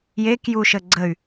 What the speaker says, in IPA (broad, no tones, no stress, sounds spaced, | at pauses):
j e k j u ʃ ə ɡ͡ǀ ə y̯